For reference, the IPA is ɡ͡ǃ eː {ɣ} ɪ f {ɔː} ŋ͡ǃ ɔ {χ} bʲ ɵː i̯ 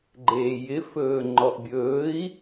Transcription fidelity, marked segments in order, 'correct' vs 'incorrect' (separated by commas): incorrect, incorrect, incorrect